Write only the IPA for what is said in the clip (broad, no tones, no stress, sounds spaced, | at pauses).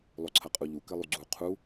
lˠ o ǀʰ ɐ qʼ u ʎ u k ɘ lˠ u ɡ͡ǀ u qʰ u